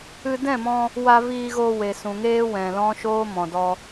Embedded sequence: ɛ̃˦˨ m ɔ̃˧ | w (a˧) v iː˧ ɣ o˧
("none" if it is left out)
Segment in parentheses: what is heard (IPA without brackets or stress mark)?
a˧